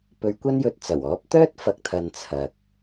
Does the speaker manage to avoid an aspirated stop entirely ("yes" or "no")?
no